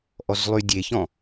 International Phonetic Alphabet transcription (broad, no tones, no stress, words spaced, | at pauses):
ʔɔzlˠydʲeçɔ̃